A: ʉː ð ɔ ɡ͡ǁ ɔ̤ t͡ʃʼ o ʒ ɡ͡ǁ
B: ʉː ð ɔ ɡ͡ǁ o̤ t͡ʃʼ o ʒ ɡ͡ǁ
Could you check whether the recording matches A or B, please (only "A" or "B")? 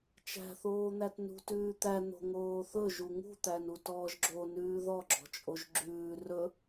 A